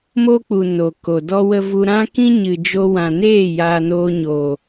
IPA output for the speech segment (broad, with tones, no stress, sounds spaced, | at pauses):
m o˦ k͡p u˨ n o˨ k o˨ d ɔ˧ w ə˧ v u˧ ɾ ã˦ k ĩ˦ ɲ ɨ˨ d͡ʒ o˧ w ã˨ n eː˦˨ j aː˧ n oː˧ ɲ o˨